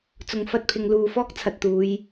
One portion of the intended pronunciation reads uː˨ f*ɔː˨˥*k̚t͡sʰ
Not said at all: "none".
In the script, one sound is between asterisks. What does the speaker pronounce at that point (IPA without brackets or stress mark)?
ɔː˥